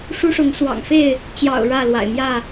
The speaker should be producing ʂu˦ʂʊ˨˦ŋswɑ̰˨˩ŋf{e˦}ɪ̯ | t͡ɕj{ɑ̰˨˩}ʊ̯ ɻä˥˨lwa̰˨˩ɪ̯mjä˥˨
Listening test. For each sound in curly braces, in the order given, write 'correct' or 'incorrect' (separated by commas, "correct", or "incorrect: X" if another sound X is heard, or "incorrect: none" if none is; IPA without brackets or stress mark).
incorrect: e˥˨, correct